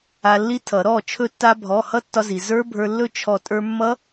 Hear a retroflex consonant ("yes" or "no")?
no